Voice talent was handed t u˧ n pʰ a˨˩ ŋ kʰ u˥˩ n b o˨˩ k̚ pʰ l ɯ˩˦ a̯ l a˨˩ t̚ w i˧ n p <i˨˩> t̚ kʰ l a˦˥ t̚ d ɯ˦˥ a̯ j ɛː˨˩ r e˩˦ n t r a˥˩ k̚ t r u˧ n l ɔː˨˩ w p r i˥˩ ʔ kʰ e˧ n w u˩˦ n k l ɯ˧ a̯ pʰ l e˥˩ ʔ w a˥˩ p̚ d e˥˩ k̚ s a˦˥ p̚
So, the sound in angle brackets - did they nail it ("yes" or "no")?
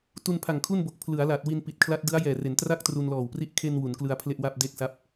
yes